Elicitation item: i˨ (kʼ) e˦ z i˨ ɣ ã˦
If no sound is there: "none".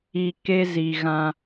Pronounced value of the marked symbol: k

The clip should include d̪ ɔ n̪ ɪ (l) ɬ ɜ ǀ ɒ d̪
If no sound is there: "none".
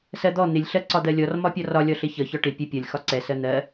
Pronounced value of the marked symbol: lʲ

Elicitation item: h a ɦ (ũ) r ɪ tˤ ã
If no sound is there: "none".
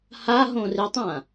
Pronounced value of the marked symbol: õ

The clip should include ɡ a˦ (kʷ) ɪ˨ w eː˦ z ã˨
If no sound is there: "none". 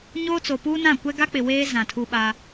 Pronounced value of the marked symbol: k͡p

